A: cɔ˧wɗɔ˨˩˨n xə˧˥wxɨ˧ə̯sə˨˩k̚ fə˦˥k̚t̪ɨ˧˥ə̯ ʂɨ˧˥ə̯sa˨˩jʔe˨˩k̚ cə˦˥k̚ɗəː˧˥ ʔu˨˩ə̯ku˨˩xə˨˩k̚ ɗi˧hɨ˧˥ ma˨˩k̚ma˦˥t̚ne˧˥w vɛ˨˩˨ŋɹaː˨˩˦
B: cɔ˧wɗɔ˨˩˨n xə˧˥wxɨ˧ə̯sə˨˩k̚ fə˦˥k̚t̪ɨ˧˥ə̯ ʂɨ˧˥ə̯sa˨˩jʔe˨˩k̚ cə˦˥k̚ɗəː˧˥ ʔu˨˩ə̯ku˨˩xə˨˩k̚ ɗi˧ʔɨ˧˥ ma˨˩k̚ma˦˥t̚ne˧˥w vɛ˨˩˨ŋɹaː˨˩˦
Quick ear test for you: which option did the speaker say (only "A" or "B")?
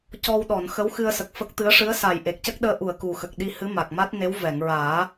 A